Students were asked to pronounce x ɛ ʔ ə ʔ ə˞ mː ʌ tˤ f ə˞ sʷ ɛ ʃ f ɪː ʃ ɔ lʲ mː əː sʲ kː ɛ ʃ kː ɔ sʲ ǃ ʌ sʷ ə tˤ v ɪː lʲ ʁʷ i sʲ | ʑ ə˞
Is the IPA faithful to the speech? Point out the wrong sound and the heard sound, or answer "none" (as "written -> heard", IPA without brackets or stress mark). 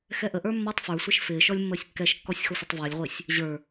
ǃ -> x